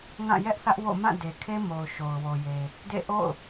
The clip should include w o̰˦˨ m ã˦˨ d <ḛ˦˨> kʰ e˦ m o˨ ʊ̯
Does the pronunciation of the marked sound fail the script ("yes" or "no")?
yes